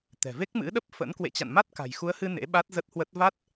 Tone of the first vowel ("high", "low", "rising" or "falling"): low